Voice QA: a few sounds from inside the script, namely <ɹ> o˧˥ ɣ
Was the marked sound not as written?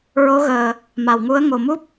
no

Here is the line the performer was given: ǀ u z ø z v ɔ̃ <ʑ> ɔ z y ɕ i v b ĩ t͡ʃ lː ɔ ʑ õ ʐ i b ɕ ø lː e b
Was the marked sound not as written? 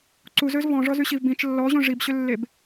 yes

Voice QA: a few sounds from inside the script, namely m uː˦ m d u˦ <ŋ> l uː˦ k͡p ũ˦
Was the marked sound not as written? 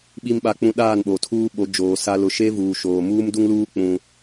no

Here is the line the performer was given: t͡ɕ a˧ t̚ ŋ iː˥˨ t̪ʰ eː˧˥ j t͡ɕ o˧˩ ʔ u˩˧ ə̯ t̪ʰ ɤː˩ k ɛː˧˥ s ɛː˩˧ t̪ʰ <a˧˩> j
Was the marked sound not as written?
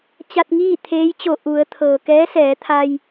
yes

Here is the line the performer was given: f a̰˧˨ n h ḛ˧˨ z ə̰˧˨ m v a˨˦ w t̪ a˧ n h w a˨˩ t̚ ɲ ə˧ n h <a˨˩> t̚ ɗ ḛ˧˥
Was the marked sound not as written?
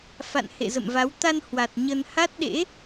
yes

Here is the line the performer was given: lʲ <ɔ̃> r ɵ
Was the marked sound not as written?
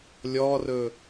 yes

